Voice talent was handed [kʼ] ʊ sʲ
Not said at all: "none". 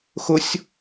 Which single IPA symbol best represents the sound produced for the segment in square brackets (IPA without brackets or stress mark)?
x